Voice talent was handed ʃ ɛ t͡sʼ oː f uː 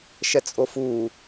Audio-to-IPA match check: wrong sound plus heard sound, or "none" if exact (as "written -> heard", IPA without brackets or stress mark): oː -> o